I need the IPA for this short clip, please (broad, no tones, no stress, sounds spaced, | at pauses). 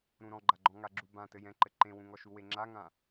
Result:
ɾ ũ ɾ ɔ̃ ɡ͡ǃ a ɡ͡ǃ ɔ̃ ŋ a ɡ͡ǁ u b ã t ɘ j ɛ̃ ǃ ɘ ǃ ẽ w ũ ŋ ɔ ʃ u w e ŋ͡ǁ a ŋ ã